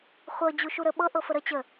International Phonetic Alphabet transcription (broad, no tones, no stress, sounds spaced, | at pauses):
χʷ ɤ d͡ʑ u ʃ u ɾ ə ɓ ɤ ʔ ɤ f ə ɾ ə t͡ɕ ə